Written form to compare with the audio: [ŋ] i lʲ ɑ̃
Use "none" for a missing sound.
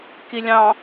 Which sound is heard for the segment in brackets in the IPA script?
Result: k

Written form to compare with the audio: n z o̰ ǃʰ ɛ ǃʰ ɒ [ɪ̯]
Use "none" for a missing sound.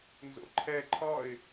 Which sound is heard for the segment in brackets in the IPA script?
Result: ɪ̯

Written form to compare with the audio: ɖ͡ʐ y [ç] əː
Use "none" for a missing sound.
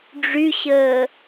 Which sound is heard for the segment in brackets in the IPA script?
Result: ɕ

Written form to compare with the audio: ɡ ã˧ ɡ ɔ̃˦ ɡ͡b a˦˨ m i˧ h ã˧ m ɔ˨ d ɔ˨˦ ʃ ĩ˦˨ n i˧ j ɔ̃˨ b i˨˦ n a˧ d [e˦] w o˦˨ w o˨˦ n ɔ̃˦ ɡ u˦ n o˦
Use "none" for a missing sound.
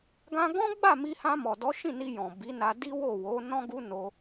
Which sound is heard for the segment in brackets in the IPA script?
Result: i˦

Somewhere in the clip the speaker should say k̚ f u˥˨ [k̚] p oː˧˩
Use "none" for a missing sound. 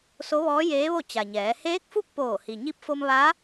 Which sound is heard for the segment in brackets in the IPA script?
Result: k̚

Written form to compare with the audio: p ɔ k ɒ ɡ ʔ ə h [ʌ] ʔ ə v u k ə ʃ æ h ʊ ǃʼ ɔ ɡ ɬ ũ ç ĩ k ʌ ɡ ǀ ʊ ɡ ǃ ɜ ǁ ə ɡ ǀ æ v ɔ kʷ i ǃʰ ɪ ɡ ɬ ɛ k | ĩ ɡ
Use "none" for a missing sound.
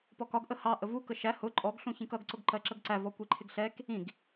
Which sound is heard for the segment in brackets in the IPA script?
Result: ɑ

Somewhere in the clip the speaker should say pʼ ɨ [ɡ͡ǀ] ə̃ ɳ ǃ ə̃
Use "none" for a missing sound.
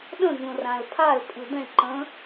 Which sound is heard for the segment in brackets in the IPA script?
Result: d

